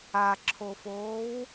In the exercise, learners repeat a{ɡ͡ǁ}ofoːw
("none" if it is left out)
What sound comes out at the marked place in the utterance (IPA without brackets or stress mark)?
ǁʰ